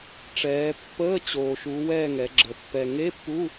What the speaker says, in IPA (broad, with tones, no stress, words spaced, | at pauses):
ʈ͡ʂɛː˩˧ pːəː˧˥˧ t͡ɕoː˩ʃu˩˧wɛː˦˨ ŋɛ˩˧ɡ͡ǁə˩˧ pːɛ˩ŋe˧˥˧pːu˧˥˧